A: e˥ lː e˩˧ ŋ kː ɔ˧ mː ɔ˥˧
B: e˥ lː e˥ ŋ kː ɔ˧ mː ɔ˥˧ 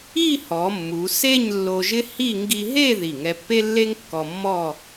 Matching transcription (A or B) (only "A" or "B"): B